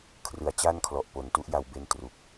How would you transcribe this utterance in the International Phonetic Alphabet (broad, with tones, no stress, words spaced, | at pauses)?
kʰrɯ˨˩a̯t͡ɕa˥˩nkʰlɔ˨˩ʔ po˨˩n tu˦˥ʔja˧w be˦˥n tru˨˩k̚